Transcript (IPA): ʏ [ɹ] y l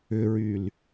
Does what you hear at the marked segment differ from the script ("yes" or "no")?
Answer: no